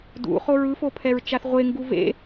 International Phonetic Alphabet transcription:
d ṵ χ o ɹ ɯ f o pʰ ɛ ɹ t͡ʃ a θ ʁʷ e ŋ ɡ u v ḛ

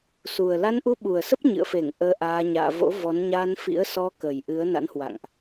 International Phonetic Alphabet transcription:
s u˨˩ ə̯ l a˧ n ʔ u˧ ɓ u˨˩ ə̯ s ə˦˥ p̚ ɲ ɨ̰˧˨ ə̯ f e˧˩ ŋ ʔ əː˧ ʔ aː˧ ɲ a̰ː˧˨ v o̰˧˥ v ɔ˨˦ n ɲ a˧ n f ḭ˧˥ ə̯ s ɔ˧ k ə˨˩ j ʔ ɨ˨˦ ə̯ n a̰˧˥ n h w a̰˧˨ ŋ ʔ

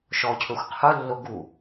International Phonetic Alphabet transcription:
ʃ ɔ cʰ ɵ xʷ qʰ u lː o ɡ u

